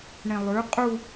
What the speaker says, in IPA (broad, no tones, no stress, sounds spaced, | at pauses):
ɳ ĩ lˠ ʉ qʼ u